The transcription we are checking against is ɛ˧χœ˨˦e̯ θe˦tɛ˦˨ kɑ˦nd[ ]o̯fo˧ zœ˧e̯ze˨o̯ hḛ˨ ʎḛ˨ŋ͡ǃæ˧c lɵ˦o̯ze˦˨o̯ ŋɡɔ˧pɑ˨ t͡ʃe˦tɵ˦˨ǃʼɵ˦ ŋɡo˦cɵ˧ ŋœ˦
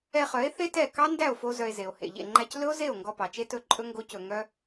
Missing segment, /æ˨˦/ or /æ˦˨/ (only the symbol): æ˦˨